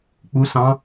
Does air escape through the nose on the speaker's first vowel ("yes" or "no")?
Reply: no